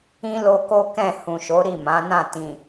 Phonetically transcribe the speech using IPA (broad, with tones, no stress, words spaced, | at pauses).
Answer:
ĩ˦lo˧ko˦ kɛ̃˦˨ hũ˨ʃo˨˦ ɾi˦˨mã˨˦nã˦˨ tĩ˨